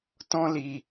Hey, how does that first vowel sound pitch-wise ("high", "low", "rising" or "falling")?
high